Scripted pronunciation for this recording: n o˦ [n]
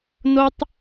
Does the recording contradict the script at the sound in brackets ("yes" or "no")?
yes